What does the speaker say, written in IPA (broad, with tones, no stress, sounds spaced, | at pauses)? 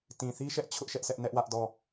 t ĩ˨ θ i˦ ʃ ɛ˦ ʔ t͡ɕʰ ʊ˦ ʔ ʃ ɛ˦ ʔ sʰ ɛ˦ ʔ n ɛ˦ ʔ w ä˦ ʔ d ɔ˦˨